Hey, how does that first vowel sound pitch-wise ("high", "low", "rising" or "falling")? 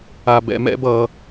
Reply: low